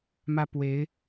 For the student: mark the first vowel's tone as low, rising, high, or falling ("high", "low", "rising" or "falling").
high